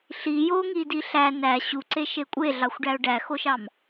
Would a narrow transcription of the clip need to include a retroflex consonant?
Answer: yes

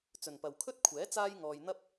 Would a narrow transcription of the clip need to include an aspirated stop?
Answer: yes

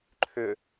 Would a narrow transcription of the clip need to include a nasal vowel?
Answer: no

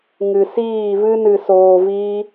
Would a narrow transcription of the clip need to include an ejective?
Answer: no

